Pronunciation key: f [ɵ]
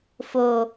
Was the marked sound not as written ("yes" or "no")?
yes